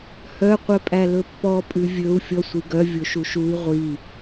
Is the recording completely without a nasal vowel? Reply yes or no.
yes